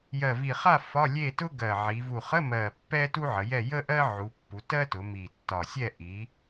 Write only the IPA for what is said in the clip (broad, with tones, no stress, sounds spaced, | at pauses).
j ɜ˨˩ v i˨˩ χ a˥˨ f ɒ˧˥˧ lʲ e˥˨ t ʊ˥ ɡ ɜ˨˩ ʕ i˩˧ v u˨˩ χ ə˧˥˧ m ɜ˨˩ pː ɛ˥ t u˥ ʕ ə˩˧ j ɛ˥˨ j ə˥ ʔ ɜ˥ ʕ u˩˧ pː u˩˧ t ɜ˥ t ʊ˩˧ m i˨˩ tː ɒ˨˩ sʲ ɛ˥˨ ʔ i˩˧